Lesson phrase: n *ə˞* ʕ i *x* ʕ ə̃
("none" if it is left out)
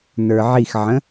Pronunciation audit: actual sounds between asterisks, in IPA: ə˞, x

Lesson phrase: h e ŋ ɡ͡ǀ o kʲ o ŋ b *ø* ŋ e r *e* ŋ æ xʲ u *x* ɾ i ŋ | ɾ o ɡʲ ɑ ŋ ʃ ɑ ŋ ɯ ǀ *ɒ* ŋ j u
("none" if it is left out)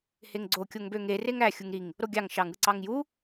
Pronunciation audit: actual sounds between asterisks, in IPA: ø, e, ŋ, ɑ

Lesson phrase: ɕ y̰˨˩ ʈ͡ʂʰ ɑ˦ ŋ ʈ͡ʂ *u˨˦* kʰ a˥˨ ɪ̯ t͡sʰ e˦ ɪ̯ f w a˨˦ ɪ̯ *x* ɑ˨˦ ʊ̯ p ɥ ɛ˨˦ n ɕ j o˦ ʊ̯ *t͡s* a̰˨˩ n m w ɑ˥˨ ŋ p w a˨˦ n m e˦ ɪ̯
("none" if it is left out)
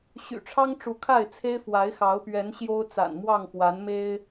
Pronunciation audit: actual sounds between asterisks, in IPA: u˨˦, x, t͡s

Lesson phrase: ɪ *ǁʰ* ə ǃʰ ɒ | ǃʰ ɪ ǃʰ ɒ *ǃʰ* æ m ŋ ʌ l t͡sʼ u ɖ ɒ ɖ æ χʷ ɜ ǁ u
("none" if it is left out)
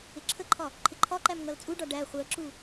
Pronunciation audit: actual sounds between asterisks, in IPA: ǁʰ, ǃ

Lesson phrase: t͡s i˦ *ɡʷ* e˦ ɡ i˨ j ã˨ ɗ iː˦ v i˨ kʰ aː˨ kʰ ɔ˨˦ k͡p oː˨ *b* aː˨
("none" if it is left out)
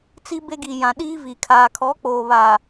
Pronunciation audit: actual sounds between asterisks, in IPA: b, β

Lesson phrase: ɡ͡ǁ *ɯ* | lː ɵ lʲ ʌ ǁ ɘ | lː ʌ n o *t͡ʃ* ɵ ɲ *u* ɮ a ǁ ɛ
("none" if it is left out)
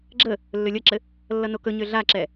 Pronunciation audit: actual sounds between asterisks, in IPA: ə, k, ø

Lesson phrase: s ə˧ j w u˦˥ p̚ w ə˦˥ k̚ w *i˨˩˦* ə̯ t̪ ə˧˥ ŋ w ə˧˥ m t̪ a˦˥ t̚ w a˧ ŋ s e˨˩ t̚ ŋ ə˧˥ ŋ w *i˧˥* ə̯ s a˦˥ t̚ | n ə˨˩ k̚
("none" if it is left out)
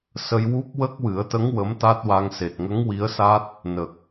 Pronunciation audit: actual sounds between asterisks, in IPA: ɨ˨˩˦, i˧˥

